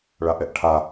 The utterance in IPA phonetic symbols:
ɭaʔɛʔʈʰa

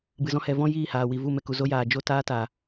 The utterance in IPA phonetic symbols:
bɨ˨zɔ̃˧hɛ˨ vɔ̃˦jiː˦˨haː˨ wi˨vu˦˨ mɛ˧ku˨zo˦jaː˨ d͡ʒo˦taː˦ta˨

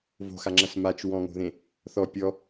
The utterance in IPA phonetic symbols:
vo̤xaŋ͡ǁɐs mat͡ʃ wɔ̃ŋo̤ðẽ | θɔ pʲɔ

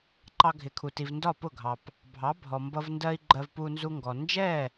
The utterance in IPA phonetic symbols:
ǃɑ˧ɡʱɪ˩kʰu˩ti˩v ndɒ˥˩pʊ˥˩ɡʱɑ˩p | bʱɑ˩˥bʱɔ˩mbʌ˧v ndɜ˥i̯ɡ͡ǃɜ˧vpu˧ nzu˧ŋɡɔ˩ nd͡ʒɛ˥˩

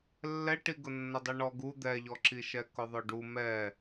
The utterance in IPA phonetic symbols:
lːɛʈiɡʊ nːʊdˤiɳɔɡu d̪ɛʎɔǁiʃɛ kʊðˤʊɖu mɛ

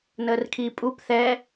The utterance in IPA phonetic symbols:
nəːrkʰiːpʼup θɛ

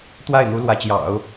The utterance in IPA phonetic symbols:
t̪wa˥˩ɪ̯n̪u˧˥ lwä˧˥t͡ɕjɑ̰˨˩˦ʊ̯

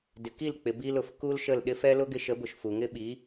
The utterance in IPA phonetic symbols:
dɪ˨ki˦˨lk͡pɪ˨ bi˧lʊ˨f ku˦lʃə˦˨l ɗɪ˦fɛ˦ lʊ˦ɡɪ˧ʃə˨˦bʊ˨ʃ fu˨ŋɪ˦ɓi˨˦

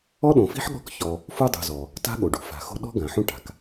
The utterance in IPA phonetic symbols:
ɔ˥ɗõ˨fi̤˥ħɠɔ̤˦k çɔ˨ | fu˥dˤṳ˨zɔ˩ | ta̤˥ɠo˩ɖṳ˩ fa̤˨xo̤˦ɗɔ̤˥ ɡã˩ħũ˦ ʈa̤˩k

